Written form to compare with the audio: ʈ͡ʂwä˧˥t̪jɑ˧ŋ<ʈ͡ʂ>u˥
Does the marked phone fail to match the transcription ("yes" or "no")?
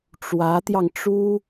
no